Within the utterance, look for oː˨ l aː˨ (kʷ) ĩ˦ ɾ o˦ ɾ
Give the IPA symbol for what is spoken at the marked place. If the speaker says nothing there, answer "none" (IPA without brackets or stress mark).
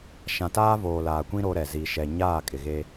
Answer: kʷ